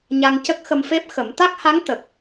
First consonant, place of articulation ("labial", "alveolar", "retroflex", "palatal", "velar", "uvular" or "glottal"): palatal